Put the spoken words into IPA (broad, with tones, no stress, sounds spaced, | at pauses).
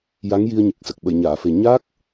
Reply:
j a˧˥ ŋ j i˧ ə̯ ɲ ɨ˨˩ k̚ s ə˨˩ k̚ ɓ ə˨˩˨ j ɲ aː˨˩˨ f e˨˩ ɲ a˦˥ k̚